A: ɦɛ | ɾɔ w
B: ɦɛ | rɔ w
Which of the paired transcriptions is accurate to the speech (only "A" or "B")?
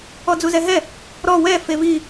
A